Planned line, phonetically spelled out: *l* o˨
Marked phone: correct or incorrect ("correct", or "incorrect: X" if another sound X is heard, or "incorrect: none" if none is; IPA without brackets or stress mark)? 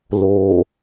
correct